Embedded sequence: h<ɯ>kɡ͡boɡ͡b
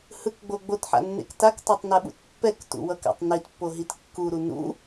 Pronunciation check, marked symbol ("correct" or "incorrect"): correct